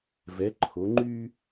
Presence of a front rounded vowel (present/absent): present